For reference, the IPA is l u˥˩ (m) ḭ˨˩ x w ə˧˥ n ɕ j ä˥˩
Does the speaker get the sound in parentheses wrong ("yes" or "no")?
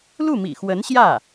no